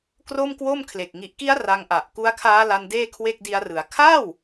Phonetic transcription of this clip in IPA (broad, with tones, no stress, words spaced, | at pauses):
kro˥˩mkwo˥˩mkʰle˨˩k̚ ŋi˨˩ʔki˦˥a̯ ra˧ŋʔa˨˩ʔ ku˦˥a̯kʰaː˦˥la˧n deː˥˩kʰwe˥˩k̚di˦˥a̯rɯ˩˦a̯ kʰaː˥˩w